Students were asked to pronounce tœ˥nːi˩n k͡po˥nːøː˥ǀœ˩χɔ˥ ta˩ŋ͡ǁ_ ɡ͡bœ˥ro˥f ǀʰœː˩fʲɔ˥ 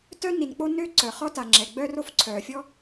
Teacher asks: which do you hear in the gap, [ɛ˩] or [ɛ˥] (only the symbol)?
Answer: ɛ˩